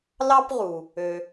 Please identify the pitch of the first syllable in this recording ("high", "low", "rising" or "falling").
high